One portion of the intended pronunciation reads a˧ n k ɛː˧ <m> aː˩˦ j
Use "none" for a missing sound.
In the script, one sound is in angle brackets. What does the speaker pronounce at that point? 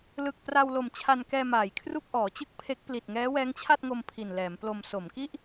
m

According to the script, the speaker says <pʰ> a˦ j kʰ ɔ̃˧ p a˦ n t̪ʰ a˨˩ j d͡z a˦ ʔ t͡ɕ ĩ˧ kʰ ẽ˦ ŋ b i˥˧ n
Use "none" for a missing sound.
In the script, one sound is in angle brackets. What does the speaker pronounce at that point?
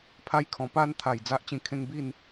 pʰ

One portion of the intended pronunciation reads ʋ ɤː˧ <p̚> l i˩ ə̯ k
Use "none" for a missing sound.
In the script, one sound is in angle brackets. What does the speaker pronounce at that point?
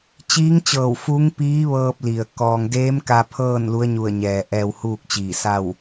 p̚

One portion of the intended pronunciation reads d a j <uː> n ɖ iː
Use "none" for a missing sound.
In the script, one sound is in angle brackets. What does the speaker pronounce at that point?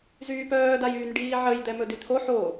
yː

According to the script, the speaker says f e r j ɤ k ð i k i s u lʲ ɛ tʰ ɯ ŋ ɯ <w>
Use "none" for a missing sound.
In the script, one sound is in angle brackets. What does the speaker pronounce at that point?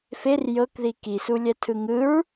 ɹ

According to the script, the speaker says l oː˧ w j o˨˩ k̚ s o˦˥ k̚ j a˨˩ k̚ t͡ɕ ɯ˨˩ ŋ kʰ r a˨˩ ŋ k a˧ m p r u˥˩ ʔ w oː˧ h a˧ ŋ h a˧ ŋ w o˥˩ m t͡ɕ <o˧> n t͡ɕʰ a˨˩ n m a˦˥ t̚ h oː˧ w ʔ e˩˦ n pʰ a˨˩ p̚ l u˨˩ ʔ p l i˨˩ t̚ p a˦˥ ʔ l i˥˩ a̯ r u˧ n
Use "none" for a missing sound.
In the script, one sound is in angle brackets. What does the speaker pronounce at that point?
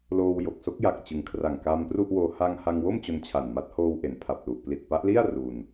o˧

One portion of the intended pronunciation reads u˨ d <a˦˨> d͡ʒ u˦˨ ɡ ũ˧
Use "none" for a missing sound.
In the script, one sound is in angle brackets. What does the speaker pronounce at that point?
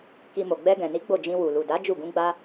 a˨˦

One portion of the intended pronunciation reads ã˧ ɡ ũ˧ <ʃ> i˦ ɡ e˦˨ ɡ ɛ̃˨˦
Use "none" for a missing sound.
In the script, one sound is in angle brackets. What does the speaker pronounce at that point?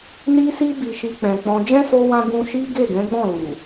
ʃ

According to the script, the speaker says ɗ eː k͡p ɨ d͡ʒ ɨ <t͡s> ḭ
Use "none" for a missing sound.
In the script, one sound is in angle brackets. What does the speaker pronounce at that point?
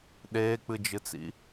t͡s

